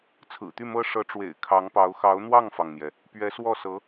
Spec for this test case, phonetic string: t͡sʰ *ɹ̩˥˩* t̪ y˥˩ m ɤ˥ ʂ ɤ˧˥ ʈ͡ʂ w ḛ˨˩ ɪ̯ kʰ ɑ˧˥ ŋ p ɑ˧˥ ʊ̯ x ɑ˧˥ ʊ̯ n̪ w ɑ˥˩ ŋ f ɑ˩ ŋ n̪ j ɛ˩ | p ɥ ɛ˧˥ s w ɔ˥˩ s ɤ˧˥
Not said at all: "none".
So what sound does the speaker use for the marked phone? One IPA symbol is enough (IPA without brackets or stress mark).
ɹ̩˨˩